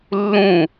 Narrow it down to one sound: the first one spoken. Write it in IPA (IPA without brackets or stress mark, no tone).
lː